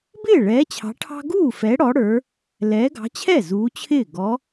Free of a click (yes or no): yes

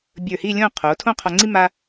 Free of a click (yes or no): no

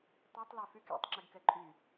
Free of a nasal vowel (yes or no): yes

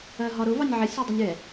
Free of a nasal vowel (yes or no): yes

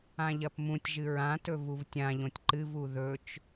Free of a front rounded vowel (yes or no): yes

